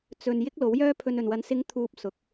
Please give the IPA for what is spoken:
t͡sɵ˨n jɪ˥k̚lo˨˥wjœː˥pʰɵ˧n ɵ˨˩nwɐ˨˥n sɪ˨˧ŋt̪ʰuː˨p̚ sʊ˨˥k̚

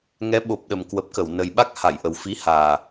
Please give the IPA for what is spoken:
ŋɛ˨˦ ɓo˨˩p̚ɗə˨˩m kwə˨˩p̚kə˧˩wnə˨˩jɓa˦˥k̚ ha˧˩jʔə˨˩w fi˨˦haː˨˩

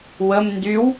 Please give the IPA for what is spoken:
wəm ndyw

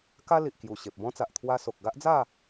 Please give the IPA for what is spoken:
ka˦li˨ʔ kju˨˩ ɕe˨p̚bɔ̃˦t͡sa˨ʔ t̪ʰwa˧ so˨k̚ɡa˦ʔd͡za˥˧

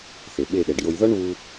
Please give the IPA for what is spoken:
θe˨ɓe˦˨ɗɛ˨ɖ jo˧j ðɔ˦ɳβu˧

